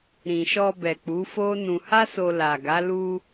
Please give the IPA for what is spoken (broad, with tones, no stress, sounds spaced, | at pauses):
ɾ ĩ˨ ʃ ɔ˧ b ɛ˨ k͡p u˨˦ f o˦ n ũ˧ h a˦ s o˧ l a˨ ɡ a˨˦ l u˧